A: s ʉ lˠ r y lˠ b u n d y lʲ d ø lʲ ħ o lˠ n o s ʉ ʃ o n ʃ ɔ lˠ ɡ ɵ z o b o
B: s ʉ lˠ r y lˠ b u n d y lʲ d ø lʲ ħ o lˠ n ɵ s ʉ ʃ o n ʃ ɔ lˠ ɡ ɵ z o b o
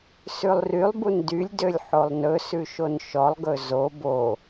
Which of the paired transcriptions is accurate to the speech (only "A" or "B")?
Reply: B